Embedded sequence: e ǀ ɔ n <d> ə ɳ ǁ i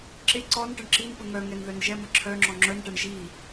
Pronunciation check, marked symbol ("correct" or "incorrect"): incorrect